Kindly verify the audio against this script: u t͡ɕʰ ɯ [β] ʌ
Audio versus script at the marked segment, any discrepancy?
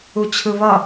no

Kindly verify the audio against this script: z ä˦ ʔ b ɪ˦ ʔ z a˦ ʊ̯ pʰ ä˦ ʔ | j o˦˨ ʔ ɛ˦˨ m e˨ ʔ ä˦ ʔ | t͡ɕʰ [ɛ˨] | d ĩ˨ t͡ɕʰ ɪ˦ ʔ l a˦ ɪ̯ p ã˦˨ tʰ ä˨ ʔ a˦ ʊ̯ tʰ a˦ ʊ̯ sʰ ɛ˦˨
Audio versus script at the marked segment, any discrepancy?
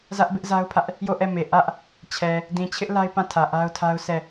no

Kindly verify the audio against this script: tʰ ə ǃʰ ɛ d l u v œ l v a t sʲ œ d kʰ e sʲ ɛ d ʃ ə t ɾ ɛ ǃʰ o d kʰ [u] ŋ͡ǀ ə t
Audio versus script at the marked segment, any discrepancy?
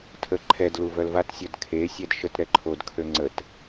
yes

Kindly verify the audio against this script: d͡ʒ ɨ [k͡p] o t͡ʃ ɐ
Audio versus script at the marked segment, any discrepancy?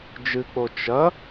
no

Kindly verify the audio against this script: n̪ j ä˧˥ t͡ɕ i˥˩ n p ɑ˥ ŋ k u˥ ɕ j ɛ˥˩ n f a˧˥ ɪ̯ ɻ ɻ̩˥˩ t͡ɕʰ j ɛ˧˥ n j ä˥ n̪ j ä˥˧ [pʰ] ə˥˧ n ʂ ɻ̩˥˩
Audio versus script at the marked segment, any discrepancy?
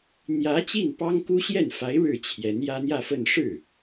yes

